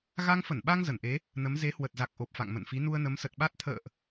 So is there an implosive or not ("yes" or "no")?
yes